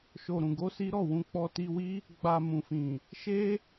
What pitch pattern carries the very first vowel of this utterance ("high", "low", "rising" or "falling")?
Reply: low